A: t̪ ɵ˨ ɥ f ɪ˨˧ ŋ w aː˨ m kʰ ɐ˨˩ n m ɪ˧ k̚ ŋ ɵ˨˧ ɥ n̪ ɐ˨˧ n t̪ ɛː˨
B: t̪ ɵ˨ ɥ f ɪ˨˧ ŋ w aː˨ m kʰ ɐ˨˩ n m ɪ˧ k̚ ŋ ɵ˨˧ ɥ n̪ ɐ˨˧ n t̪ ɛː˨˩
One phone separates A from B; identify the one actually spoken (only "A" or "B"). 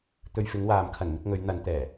B